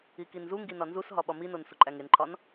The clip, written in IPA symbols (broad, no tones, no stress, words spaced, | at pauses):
ikinzuŋɡi nɒnzusɦɒ ɓɒminon suǃʼæŋenǃʰɒn